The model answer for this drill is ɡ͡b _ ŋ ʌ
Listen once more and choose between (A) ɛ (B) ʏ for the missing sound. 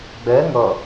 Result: A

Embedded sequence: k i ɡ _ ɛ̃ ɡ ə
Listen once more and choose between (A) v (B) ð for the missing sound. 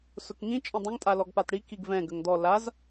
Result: A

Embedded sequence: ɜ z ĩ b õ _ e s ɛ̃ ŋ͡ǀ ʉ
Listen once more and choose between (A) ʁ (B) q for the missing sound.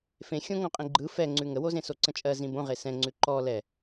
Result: A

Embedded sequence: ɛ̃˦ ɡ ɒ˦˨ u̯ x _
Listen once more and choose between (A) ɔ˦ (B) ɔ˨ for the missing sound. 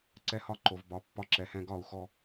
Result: A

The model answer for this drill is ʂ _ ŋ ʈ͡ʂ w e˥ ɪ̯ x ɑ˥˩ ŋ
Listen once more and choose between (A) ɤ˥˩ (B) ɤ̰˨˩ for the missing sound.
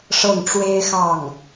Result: A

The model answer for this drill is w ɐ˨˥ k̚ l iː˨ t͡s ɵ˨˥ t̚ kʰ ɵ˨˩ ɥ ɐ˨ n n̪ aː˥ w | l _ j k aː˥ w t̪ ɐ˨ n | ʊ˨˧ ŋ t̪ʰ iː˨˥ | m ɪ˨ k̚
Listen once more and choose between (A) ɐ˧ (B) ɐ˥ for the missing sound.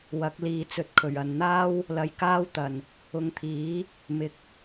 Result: A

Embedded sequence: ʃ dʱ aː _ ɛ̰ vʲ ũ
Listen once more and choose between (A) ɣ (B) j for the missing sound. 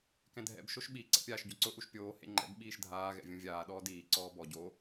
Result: A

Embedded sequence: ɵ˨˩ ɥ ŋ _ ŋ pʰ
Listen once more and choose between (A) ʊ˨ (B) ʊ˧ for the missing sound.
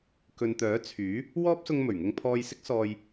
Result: B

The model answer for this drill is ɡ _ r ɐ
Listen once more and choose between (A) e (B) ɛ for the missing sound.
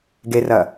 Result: A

